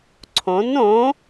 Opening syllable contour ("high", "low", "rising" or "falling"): rising